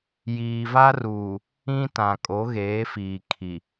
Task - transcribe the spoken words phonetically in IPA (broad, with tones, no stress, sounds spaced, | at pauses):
j iː˨ v a˦ r uː˨ | ĩ˦ t ã˨ kʼ o˨˦ ɣ eː˨˦ f iː˨ kʰ i˨